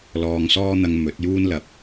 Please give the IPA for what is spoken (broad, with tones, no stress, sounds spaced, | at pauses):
l ɔː˨ ŋ s ɔː˧ n̪ ɐ˨ ŋ m ɵ˨˥ t̚ j uː˧ n l ɐ˨˥ p̚